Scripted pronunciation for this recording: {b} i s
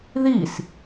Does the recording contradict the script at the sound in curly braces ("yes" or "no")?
yes